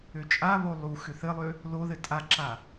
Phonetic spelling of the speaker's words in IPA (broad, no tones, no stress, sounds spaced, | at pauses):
ø t͡ʃʼ a β o lˠ u x ʏ θ ɘ lˠ ø | l o ð ɘ tʼ a ǁ a